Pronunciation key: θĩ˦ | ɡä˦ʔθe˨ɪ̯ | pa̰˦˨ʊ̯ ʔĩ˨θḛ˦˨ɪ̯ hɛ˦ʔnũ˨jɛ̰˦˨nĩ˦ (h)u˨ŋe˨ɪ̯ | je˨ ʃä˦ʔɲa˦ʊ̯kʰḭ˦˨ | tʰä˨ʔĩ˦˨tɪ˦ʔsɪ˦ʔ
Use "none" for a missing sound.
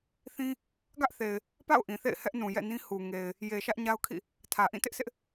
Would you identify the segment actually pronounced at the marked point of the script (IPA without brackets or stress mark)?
h